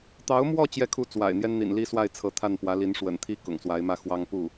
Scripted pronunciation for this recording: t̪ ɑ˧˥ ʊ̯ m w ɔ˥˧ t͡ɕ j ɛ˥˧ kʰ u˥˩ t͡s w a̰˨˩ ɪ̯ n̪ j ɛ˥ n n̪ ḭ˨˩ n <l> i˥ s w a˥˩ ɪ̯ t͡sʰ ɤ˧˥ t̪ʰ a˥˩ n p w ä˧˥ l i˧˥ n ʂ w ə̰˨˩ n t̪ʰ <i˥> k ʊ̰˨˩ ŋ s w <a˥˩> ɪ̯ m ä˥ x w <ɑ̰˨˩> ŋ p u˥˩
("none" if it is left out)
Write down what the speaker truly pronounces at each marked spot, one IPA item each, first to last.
l, i˥, a˧˥, ɑ˥

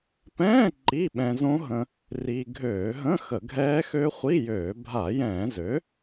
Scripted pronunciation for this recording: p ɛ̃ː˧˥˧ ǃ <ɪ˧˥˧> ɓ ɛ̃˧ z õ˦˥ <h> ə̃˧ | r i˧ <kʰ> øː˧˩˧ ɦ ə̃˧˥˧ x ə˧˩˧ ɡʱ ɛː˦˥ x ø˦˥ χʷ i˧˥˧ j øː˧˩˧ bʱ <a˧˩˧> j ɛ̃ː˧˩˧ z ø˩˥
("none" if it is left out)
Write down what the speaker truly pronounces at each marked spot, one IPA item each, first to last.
i˧˥˧, ɦ, ɡʱ, a˧˩˧

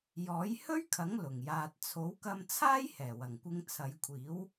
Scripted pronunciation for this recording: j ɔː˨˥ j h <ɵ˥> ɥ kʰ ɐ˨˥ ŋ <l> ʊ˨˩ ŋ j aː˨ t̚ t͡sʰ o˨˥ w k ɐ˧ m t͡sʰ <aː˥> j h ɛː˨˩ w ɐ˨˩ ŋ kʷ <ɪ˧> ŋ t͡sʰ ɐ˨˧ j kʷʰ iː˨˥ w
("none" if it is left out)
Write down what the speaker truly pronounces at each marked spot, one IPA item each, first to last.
ɵ˥, l, aː˥, ɪ˧

